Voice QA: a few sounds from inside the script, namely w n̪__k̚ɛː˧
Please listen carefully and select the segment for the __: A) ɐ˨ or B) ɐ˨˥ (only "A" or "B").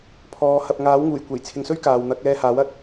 B